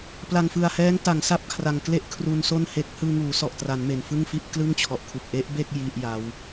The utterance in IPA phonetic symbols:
p l a˨˩ ŋ f ɯ˨˩ a̯ h ɛː˦˥ ŋ t a˩˦ ŋ s a˥˩ p̚ kʰ r a˨˩ ŋ k l e˥˩ ʔ kʰ r u˧ n s o˥˩ n h e˦˥ k̚ h ɯː˧ ŋ uː˩˦ s ɔ˨˩ ʔ t r a˩˦ n m e˨˩ n f ɯ˥˩ ŋ f i˥˩ ʔ k l ɯ˥˩ ŋ t͡ɕʰ ɔ˨˩ ʔ kʰ u˨˩ k̚ ʔ e˦˥ ʔ b e˥˩ k̚ j i˥˩ ʔ j a˦˥ w

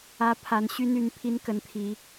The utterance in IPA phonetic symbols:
ä˨˦ pʰ a˨˦ n ɕ y˦ n y˥˨ n pʰ i˦ n k ə˨˦ n t̪ʰ i˨˦

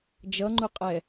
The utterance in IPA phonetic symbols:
d͡ʒ ʌ ŋ͡ǃ u qʼ ɛ

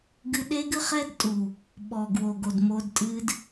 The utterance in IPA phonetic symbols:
ɡ ɨ˧ ɗ e˦ ɡ ɨ˦ χ ɛ˦ d tʼ u˨ | ɓ ɔ˨ ɡ w o˨ ɡ o˨ d m o˧ d tʼ ɨ˦ d

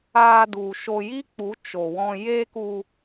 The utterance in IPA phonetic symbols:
aː˧ d u˨ ʃ o˧ j i˦ k͡p u˨˦ t͡ʃ o˨ w ɔ̃˧ j e˦ k u˧

